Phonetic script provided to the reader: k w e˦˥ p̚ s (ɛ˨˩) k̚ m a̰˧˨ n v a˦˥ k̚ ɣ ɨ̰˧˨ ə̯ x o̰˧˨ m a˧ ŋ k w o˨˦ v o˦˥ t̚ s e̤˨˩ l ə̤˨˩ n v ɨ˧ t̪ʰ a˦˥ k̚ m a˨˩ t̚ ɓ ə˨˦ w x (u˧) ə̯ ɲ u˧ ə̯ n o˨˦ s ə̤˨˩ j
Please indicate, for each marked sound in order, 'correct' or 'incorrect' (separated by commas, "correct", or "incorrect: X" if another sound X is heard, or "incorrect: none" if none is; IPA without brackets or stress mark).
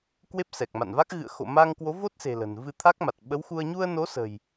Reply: correct, correct